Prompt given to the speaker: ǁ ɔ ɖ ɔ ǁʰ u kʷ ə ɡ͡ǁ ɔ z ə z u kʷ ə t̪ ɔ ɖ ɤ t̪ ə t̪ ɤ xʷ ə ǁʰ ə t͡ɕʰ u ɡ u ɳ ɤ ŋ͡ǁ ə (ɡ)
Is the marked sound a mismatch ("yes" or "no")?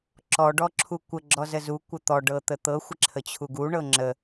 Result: yes